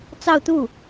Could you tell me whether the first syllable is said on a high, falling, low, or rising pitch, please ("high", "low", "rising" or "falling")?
falling